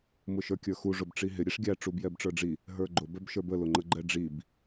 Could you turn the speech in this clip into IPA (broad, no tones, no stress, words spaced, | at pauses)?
mʊʃə˞kʲə˞xu ʐʊbʈ͡ʂiɦɪ ɾʲɛʂɡʲæ ʈ͡ʂubjɛbʈ͡ʂə˞ɖ͡ʐi | ɦə˞ɡ͡ǃʊ bɛbʃə˞bə lʊŋ͡ǃəɡ͡ǃɛɖ͡ʐib